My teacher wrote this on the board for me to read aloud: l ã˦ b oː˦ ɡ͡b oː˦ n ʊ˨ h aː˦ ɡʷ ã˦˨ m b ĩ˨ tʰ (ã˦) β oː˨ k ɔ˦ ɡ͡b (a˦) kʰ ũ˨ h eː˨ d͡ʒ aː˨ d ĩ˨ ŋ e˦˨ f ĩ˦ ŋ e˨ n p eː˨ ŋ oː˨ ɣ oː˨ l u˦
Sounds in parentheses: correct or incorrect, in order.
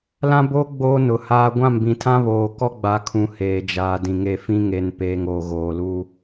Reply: correct, incorrect

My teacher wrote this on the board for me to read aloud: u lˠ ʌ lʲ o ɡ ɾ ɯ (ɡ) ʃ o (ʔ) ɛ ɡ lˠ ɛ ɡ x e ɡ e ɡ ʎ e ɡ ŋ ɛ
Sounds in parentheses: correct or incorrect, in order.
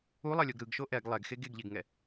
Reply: correct, correct

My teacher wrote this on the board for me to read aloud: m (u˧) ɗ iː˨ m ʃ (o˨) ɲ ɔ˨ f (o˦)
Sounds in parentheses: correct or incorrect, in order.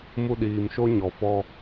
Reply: correct, incorrect, incorrect

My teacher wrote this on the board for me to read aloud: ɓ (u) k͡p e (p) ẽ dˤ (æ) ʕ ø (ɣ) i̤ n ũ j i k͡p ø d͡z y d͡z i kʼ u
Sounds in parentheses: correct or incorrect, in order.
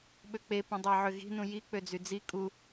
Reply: incorrect, correct, correct, correct

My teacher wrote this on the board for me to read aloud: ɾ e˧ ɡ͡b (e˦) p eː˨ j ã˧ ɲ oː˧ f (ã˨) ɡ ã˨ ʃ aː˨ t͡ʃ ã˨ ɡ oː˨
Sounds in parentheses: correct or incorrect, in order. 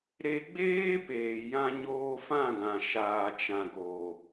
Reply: incorrect, incorrect

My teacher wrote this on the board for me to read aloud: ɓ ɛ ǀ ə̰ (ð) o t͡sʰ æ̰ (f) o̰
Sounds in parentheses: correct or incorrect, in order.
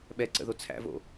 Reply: correct, incorrect

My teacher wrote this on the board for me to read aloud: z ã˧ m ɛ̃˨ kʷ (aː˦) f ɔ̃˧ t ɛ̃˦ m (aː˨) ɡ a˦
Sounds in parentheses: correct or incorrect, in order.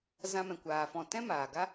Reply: incorrect, correct

